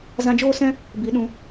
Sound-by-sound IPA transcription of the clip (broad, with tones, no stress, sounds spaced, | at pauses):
z ã˧ d͡ʒ oː˦ s ɛ̃˦ | b i˨˦ ɗ ũ˨˦